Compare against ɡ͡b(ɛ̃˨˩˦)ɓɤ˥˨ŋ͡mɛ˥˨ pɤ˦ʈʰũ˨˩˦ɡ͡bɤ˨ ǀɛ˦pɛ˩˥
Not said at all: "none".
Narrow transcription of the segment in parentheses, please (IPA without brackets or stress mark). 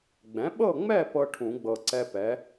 ɛ̃˩˥